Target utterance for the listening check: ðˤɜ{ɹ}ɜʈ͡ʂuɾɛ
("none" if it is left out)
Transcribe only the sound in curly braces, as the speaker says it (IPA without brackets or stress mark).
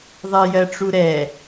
j